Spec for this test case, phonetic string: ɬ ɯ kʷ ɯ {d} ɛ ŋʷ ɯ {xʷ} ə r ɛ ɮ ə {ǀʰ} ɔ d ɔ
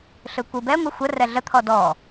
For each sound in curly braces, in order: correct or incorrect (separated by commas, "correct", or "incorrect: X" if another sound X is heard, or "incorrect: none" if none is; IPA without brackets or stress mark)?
incorrect: b, correct, incorrect: t̪ʰ